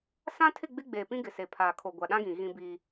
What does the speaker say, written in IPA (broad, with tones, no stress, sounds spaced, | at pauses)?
s ã˦ tʰ ɪ˦˨ ɡ͡b ɪ˦ ɡ͡b eː˨ p ĩ˦ ɡ ɪ˨ s e˨ pʰ aː˨ kʰ o˨ ɡʷ a˨ ɗ ã˦ ɡ ĩ˨ ɣ ĩ˦ b iː˦